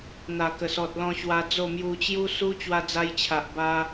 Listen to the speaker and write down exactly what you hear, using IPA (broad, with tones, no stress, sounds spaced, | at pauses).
n̪ a˨˩ k ə˨˩ s ɔ˨ t̚ l ɔ̃˧ ɕ w a˧ d͡z o˥˧ m j u˧ t͡ɕ j u˦ s u˦ t͡ɕ w a˧ d͡z a˧ j t͡ɕʰ a˨ ʔ b a˧